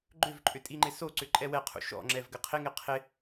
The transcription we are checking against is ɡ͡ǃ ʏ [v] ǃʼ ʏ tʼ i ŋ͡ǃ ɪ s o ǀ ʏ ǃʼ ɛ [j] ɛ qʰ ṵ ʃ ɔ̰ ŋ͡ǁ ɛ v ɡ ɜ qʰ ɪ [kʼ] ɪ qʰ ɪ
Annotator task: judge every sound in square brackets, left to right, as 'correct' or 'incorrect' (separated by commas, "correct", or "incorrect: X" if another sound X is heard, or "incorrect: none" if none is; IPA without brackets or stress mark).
correct, incorrect: w, incorrect: ŋ